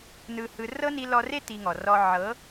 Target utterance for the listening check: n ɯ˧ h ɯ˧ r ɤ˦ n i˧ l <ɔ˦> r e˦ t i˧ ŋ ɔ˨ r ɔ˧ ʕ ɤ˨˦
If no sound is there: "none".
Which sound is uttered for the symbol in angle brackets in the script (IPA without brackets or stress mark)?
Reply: ɔ˧